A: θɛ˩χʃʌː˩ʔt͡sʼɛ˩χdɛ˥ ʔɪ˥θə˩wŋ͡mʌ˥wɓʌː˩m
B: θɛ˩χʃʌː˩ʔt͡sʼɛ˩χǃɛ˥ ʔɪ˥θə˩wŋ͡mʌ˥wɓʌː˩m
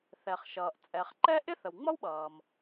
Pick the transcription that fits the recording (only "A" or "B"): B